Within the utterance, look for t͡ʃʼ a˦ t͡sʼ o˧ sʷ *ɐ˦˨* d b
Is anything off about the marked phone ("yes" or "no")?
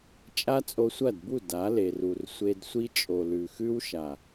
no